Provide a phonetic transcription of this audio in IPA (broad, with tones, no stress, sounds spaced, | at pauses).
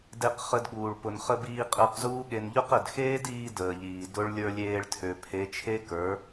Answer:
d e˧ q χ ə˧ d ɠ uː˨ ɭ p ʊ˨ n χ ə˧ b iː˧ qʼ əː˧ q z uː˦ ɠ e˧ n ʎ ʊ˦ q ə˨ d x eː˦ d iː˧ d əː˨ ʎ iː˨ d ʊ˦ ɭ lʲ ə˞˧ lʲ eː˧ ɭ tʰ ø˨ pʰ e˨˦ t͡ʃʰ e˦ k ə˞˨˦